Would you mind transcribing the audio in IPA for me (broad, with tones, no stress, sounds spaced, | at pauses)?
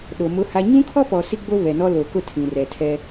ɗ o˨ m ʊ˦ h a˦ ɲ ũ˦ kʰ ɔ˦ p ɔ˨ s i˦ ɡ͡b o˦ β ɛ˨ n ɔ˦ l o˨ k ʊ˦ tʰ ĩ˨ r ɛ˨ tʰ ɛ˦